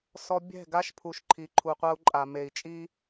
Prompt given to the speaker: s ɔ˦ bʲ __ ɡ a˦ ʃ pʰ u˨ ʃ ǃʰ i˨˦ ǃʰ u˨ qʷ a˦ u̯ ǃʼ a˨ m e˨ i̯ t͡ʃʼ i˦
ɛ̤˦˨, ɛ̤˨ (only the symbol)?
ɛ̤˦˨